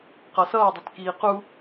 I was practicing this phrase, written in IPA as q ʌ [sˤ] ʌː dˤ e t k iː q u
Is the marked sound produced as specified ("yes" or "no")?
no